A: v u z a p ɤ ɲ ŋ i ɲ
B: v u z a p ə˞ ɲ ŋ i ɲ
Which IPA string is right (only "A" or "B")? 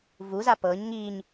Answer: A